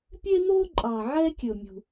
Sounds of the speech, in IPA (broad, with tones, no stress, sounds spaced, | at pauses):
pʲ eː˥ n̪ oː˥ ǃʼ ɑː˨ ʕ ɛ˥ kʲ ɵ˨ mʲ ṳ˨